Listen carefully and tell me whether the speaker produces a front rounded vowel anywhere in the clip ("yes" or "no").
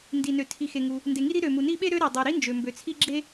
yes